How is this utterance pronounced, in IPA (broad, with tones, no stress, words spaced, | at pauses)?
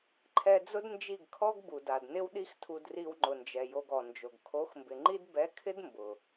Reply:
ǃʰɛ˧ d͡zʊ˦dnd͡ʒi˦˨ɡkʰɔ˦ɡbu˨ da˨dnɪ˦wɗi˦x tʰu˧dri˧wŋ͡ǃʊ˨nd͡ʒɛ˨ jo˧ɡɔ˨nd͡ʒo˨ɡ kʰo˨˦xmbɪ˨ŋ͡ǃi˦d bɛ˨˦kʰɪ˦d mbʊ˨